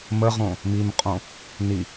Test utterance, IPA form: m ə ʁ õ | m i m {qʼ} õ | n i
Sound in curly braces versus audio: correct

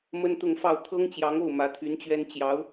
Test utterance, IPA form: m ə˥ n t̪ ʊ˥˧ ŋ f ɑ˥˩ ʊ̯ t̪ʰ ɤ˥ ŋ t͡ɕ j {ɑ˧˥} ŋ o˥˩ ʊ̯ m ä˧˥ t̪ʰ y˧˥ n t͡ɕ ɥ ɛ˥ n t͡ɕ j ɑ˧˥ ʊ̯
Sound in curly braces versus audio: correct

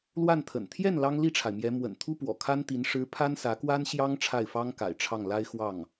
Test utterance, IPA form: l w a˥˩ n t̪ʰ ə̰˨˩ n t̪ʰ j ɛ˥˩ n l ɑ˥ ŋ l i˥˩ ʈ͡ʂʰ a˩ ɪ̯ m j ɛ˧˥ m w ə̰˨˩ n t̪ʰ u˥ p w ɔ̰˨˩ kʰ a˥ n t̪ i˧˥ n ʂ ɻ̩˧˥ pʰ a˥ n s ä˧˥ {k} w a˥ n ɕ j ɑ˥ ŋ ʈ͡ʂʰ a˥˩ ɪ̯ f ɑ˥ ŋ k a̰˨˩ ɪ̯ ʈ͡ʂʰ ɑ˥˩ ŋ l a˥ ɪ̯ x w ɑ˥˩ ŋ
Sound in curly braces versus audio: correct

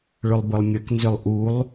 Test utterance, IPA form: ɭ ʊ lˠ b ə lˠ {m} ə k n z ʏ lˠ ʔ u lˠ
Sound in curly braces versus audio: incorrect: mʲ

